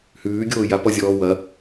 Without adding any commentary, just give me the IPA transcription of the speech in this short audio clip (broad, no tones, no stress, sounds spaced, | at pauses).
h ʉː ɡʲ oː j a p ɔ zʲ ɔː w ɐ